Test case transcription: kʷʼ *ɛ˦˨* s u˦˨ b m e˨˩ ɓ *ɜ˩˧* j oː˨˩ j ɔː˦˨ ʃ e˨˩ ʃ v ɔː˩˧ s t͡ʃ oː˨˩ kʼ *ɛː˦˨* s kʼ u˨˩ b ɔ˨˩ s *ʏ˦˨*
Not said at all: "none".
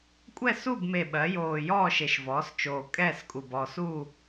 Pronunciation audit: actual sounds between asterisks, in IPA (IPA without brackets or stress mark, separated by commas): ɛ˦˨, ɜ˩˧, ɛː˦˨, u˦˨